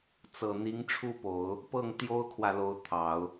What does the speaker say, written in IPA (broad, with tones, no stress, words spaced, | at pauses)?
t͡sɤ˨˩ n̪i˧˥ŋʈ͡ʂʰu˥˩po˨˩˦ʊ̯ | pɤ˥˩ŋ t̪jo˥ʊ̯kʰwä˨lo˧˥ʊ̯ t̪ʰɑ˨˩˦ʊ̯